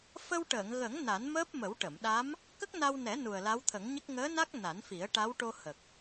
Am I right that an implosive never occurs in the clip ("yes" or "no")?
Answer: no